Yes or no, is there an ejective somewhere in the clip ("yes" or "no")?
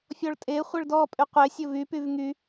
yes